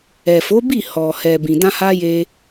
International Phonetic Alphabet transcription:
ɛ˨fo˨˦bi˦˨ hɔ˨ hɛ˨ bĩ˨dã˧ha˧ je˧

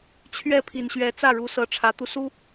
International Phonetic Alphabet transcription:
t͡ɕʰɥɛ˥˩pʰi˨˩nɕɥɛ˧˥ t͡sä˥˩ɻu˧˥sɤ˧˥ ʈ͡ʂʰä˧˥t̪u˧ su˥

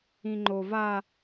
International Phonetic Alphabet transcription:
ĩŋ͡ǃo va

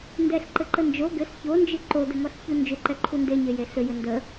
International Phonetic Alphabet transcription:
ndɛɬǃɘǃə nd͡ʒo ɡɘs çond͡ʒɨ ǃodɘŋɔɬçu nd͡ʒʏǃɛǃʰu ndeɲeje ɬʏjɘ ndə

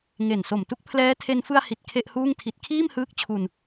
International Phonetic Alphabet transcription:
ŋe˨˩nso˨˩m tu˦˥k̚pʰlɛː˦˥tʰe˧n fɯ˧a̯hi˨˩t̚ kʰe˥˩ʔhuː˥˩ŋtʰi˦˥t̚ kʰiː˥˩mhɯː˦˥k̚t͡ɕʰu˧n

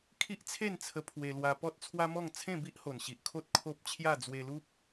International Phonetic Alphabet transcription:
kʰi˦ʔt͡sʰe˥˧nt͡sʰə˧ pʰwe˧lwa˧ pɔ˦t̚t͡sʰwa˦mɔ˥˧ŋ t͡sʰẽ˥˧bi˦ʔho˨˩n ɕi˨ʔ kʰo˦t̚ kʰo˦p̚ t͡ɕʰja˥˧d͡zwe˧lu˦p̚

